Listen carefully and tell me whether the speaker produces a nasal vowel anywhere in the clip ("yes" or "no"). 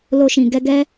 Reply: yes